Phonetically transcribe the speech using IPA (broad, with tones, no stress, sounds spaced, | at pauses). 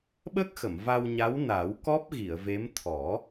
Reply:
ɓ ə˦˥ k̚ x ə˨˩˨ m v a˧ w ɲ a˧˥ w n a˨˩˦ w k ɔ˦˥ p̚ ɣ i˨˩˨ ə̯ v e˧˥ m t̪ʰ ɔ˨˩˦